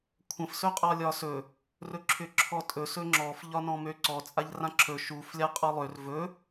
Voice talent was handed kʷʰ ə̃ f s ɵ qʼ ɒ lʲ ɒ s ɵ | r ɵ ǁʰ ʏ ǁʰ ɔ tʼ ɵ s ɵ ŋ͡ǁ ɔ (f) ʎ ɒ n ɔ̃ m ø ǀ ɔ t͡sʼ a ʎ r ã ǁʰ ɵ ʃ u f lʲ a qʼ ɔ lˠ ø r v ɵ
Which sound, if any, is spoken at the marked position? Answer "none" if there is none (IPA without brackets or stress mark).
f